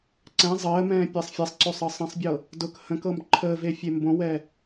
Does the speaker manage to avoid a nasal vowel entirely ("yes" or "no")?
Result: no